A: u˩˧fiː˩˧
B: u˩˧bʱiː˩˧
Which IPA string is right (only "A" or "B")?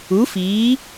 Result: A